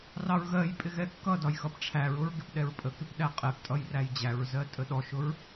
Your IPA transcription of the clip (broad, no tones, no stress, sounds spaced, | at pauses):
r ɑ ɹ ɣ ɜ j pʼ ɪ ɣ ɛ kː ʌ d ɒ j x ʌ p ʈ͡ʂʰ æ ɹ ʊ ɹ ɡ ɪ p ɗ ɛ ɹ pʼ ə k ɪ p ɗ æ qʼ ɛ p tʼ ʌ j r æ j d͡ʑ æ ɹ z ɜ tʼ ə ɗ ɔ ʃ ʊ ɹ